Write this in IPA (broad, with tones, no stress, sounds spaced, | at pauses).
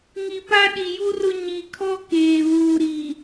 ŋ i˨ p a˦ ɗ i˨ j u˦ r ʊ˦ ɲ i˨ kʰ ɔ˦ k eː˨ β uː˨ ɾ i˨